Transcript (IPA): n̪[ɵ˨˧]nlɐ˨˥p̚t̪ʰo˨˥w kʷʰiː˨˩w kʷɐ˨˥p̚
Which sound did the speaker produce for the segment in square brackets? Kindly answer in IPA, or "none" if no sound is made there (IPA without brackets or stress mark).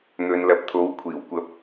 ɵ˨˧